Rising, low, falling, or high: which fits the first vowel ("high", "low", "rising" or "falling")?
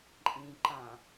low